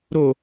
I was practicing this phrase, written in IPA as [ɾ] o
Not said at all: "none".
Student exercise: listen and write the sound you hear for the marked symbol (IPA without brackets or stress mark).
ɾ